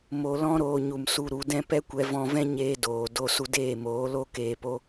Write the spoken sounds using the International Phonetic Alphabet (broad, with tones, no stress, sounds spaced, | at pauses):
m o˧ l ɔ̃˦ ɾ oː˧ ɲ u˨ m s u˧ ɾ u˨˦ d ɛ̃˦ p ɛ˦ kʷ ɛ˧ v ɔ̃˧ v ɛ̃˦ ɲ eː˧ d oː˨ d o˧ s u˧ d eː˦˨ m oː˨˦ l o˦ k eː˨ p o˧